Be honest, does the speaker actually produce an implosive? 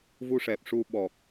yes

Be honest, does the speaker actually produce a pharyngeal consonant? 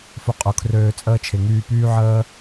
yes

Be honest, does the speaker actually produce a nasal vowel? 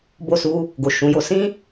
yes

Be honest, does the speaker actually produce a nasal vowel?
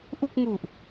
no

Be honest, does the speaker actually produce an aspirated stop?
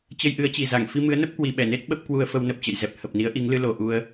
no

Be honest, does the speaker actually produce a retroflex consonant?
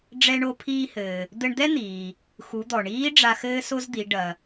yes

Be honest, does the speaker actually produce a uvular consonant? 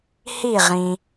yes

